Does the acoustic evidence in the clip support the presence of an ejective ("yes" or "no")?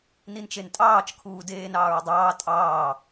yes